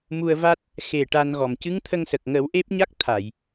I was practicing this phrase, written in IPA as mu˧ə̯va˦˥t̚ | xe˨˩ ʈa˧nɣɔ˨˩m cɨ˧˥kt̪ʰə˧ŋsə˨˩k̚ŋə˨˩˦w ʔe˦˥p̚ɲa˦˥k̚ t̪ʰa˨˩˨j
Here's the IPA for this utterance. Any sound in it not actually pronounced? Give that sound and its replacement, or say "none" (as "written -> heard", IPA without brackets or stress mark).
k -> ŋ